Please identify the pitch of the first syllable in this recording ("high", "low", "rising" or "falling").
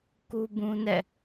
high